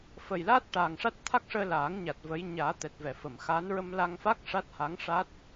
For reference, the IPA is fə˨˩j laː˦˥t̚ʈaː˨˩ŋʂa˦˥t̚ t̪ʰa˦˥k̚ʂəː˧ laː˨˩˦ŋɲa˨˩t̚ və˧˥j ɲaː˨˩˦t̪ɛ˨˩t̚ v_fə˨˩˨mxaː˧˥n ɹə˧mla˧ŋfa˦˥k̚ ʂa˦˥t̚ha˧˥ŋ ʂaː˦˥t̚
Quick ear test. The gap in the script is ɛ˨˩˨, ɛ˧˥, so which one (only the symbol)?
ɛ˨˩˨